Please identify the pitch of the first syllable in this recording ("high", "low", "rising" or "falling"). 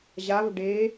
rising